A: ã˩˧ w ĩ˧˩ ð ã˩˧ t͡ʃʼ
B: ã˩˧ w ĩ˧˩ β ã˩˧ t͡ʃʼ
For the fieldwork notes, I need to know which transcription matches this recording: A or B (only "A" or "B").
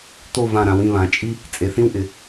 B